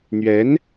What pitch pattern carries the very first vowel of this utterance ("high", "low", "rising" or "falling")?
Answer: rising